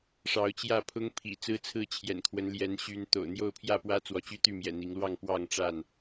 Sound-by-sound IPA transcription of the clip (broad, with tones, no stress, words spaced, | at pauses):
ʂɑ˨˦ʊ̯t͡ɕjä˥˨ pʰʊ˦ŋpʰḭ˨˩ t͡sɹ̩˦t͡sʰɹ̩˥˨t͡ɕʰjɛ̰˨˩nkʰwə˨˦n ljɛ˨˦nɕy˨˦n t̪o̰˨˩ʊ̯n̪jo˥˨ʊ̯pʰjä˥˨pwä˦ t͡swɔ˨˦t͡ɕy˦t̪y˥˨mjɛ̰˨˩ n̪i˨˦ŋlwɑ˥˨ŋpwɑ˥˨ŋ ʈ͡ʂa˥˨n